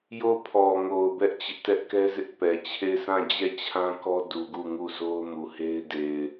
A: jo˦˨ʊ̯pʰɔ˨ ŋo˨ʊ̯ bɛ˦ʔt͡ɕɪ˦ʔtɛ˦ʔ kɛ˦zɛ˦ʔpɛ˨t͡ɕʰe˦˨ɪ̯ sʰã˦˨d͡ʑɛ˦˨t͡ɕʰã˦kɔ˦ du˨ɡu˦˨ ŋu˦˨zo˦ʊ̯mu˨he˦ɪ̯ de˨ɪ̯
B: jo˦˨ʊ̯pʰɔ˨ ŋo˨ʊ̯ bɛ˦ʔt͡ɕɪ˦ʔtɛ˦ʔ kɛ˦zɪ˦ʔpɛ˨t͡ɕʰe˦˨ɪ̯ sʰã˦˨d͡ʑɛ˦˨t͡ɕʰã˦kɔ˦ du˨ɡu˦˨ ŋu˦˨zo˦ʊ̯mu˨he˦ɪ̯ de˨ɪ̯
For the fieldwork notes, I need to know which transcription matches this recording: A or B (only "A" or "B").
B